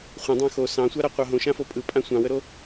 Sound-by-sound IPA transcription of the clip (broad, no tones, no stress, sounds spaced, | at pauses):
χʷ ə̃ dˤ ɑ̃ x o s ɑ̃ sʷ a ɾ a qʷ ɑ ɦ õ ʃ ã f o pʼ ɯ pʼ ã sʷ ɑ̃ w ə ɾ o